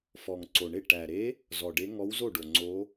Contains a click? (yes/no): yes